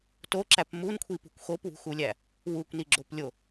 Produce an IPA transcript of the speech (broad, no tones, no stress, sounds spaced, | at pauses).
t o ǁ æ p m u n kʷʰ i p ṳ kʷ x o p w ṳ x u lʲ æ | w u kʷ n i ɡ͡ǁ o p lʲ o